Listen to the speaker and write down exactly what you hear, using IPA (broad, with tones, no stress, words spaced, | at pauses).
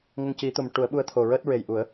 ŋə˧ŋci˨˩˦t̪o˨˩m ʈu˨˩˦ə̯ɓu˧˥ə̯t̪ʰo˨˩ ɹəː˦˥t̚ɹe˨˩jʔu˨˩˦ə̯